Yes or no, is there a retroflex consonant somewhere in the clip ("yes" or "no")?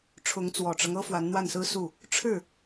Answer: yes